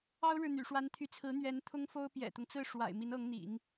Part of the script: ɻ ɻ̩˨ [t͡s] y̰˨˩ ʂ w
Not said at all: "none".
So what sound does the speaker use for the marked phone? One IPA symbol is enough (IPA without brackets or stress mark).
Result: n̪